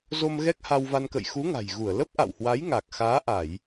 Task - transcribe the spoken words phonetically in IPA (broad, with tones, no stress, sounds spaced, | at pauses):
z o˧ m ɣ ɛ˦˥ k̚ h a˧ w v a˧ n k ə̰˧˨ j x u˨˦ ŋ a̤˨˩ j ɣ u˧˩ ə̯ l ə˦˥ p̚ ʔ a̰˧˨ w h w a˨˦ j ŋ a˨˩ k̚ x aː˨˦ ʔ a˧˩˨ j